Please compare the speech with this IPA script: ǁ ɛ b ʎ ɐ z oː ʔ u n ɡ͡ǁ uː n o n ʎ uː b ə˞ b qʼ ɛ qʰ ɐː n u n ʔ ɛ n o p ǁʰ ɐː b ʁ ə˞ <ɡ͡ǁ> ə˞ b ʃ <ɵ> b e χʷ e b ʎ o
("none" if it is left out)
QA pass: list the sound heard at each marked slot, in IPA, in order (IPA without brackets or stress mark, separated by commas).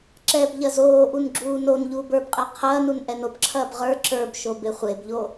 ǁ, o